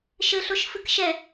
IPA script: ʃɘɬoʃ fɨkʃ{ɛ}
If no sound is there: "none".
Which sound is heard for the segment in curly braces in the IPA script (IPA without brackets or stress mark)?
ɛ